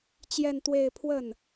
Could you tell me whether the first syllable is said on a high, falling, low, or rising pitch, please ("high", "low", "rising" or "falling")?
falling